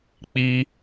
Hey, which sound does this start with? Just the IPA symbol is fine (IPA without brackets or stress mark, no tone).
k͡p